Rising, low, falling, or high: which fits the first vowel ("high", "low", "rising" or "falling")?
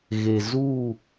low